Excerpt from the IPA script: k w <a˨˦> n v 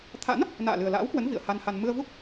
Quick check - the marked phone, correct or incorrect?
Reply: incorrect